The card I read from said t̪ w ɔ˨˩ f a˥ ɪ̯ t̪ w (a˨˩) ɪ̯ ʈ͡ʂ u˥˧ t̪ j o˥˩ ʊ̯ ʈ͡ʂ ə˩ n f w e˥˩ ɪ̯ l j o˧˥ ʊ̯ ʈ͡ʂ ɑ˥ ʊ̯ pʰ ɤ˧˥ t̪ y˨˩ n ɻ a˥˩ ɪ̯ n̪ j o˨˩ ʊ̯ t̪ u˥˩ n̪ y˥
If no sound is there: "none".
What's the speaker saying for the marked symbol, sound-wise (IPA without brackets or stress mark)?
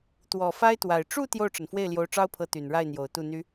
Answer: a˨˩